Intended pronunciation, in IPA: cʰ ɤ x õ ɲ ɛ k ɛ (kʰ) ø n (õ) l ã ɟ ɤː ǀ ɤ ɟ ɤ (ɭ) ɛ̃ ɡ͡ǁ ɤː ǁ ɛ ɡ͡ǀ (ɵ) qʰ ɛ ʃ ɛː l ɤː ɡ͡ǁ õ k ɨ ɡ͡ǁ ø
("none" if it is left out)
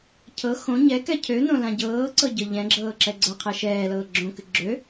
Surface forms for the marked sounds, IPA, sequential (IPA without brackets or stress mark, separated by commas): cʰ, õ, ʎ, ɤ